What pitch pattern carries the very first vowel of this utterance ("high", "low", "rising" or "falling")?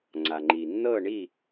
low